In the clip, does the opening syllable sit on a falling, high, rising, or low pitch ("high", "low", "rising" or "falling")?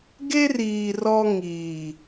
high